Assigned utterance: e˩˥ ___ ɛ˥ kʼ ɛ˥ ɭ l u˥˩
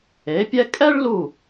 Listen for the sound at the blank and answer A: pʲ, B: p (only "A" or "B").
A